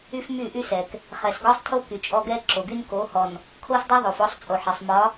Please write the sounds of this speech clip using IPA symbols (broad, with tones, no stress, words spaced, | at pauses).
y˦fmy˦˨ʔy˦sɛ˨k | χɛ˨sɡɒ˦sˤ tʰo˦ ky˨t͡ʃʼɔ˦ ɡɛ˦ǁo˨ɡy˦n ko˨˦hɔ˨n | kʰo˦sdˤɛ˦ðˤo˨f ɔ˦sˤ t͡sʼo˨ħɛ˨sˤ mɒ˨˦